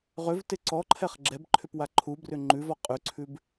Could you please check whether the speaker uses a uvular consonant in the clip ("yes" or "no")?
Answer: yes